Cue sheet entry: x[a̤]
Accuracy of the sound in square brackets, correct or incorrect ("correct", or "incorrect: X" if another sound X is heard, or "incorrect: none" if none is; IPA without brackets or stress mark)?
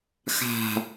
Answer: correct